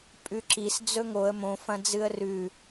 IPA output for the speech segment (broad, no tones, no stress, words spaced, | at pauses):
pʼʉǁis d͡zɵŋoə̯ mõ fɐ̃d͡zɨə̯rʉ